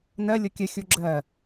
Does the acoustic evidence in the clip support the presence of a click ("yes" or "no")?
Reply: yes